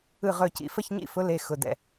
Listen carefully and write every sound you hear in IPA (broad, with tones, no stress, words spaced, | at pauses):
ɯ˧˩ʁɵ˧˩cḭ˩˧˩fə˥˨ç ɲḭ˥˨fʊ˨˥le˩˧˩ xʊ˩˧˩dɛ̰˧˩